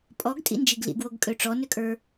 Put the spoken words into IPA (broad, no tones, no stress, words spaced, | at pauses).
pʼɔɡtʼḭnd͡ʒiɡ lḭɡwoɡkʼø ʈ͡ʂɔnøkʼə˞